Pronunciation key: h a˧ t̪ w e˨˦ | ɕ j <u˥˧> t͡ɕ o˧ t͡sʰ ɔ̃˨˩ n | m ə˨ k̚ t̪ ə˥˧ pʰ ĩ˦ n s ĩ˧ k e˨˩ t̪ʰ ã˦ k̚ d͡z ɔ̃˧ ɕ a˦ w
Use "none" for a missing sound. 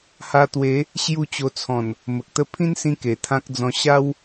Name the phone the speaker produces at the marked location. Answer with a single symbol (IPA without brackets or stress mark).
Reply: u˥˧